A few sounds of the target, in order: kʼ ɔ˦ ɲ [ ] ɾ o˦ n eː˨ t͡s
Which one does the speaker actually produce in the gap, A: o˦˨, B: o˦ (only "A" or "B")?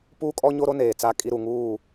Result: B